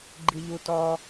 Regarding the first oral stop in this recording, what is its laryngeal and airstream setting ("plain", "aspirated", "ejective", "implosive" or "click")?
click